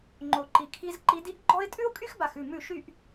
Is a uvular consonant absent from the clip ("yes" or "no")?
yes